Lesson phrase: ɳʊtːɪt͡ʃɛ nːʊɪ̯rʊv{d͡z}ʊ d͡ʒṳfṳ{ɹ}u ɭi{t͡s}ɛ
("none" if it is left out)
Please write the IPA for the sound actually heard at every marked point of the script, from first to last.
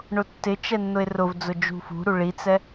d͡z, ɾ, t͡s

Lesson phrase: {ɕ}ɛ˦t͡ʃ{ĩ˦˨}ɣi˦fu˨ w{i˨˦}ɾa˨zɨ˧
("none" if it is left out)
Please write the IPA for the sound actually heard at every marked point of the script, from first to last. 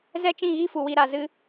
z, ĩ˦˨, i˧

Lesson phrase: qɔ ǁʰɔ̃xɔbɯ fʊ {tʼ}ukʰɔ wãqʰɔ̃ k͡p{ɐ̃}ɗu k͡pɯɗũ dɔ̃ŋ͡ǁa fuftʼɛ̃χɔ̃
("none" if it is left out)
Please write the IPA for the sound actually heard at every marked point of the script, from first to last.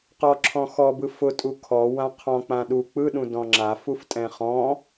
tʼ, ã

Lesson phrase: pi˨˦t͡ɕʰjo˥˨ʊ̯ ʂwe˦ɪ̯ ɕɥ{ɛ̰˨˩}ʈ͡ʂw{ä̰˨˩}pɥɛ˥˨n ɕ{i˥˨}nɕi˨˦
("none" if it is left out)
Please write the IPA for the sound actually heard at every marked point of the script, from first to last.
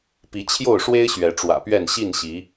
ɛ˨˦, ä̰˨˩, i˥˨

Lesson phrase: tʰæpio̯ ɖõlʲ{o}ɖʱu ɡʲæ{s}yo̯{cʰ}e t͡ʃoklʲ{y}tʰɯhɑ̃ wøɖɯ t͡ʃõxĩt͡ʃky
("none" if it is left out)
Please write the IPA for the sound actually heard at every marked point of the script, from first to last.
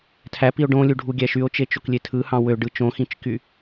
u, ʃ, t͡ʃ, e

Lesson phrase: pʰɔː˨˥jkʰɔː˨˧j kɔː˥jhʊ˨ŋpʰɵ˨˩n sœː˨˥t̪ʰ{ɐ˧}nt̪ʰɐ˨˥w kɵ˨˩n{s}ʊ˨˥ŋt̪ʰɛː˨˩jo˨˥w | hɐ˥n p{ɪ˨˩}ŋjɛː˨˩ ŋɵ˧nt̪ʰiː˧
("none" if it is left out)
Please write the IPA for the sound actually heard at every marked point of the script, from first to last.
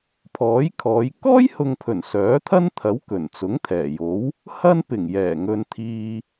ɐ˥, t͡s, ɪ˨˩

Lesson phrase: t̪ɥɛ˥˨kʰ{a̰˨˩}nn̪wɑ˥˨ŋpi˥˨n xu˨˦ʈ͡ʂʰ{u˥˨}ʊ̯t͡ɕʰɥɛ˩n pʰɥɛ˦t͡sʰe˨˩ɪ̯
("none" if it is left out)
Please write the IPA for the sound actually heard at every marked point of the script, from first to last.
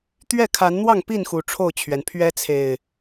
a˨˦, o˥˨

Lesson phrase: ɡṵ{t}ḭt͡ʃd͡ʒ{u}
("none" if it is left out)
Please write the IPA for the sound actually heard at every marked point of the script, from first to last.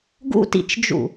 t, ṵ

